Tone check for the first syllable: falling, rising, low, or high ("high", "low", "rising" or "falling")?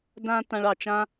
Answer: high